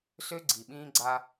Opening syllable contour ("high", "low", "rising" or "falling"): high